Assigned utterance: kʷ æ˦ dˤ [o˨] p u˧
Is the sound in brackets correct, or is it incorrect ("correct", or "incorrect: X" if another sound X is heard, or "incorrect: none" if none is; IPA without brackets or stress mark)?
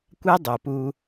correct